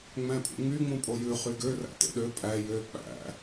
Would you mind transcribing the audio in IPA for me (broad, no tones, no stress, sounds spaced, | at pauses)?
ŋ͡m æ̃ pʼ ṵ ŋ͡m y ŋ͡m ũ pʼ o j ʉ χ y ɡ ø r æ̰ t ḛ ɗ ø pʼ æ j ø k͡p æ̰